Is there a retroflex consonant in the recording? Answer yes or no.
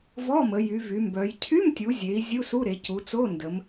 no